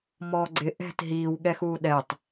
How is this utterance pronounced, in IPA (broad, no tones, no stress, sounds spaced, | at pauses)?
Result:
m ɔː ɡ͡ǀ ɪ ʔ ɛ̤ t ɦ iː w ɠ ɛ x uː ɗ ɛ tˤ